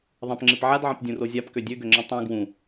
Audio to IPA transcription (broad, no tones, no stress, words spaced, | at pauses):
ðˤɐ̃pŋ͡ǁɪp ʕadʕɐ̃pdʲũro zʲapkø dʲøɡøŋ͡ǁɐ̃ tˤũ ɡwũ